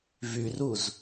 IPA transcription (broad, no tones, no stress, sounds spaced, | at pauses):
v y r u z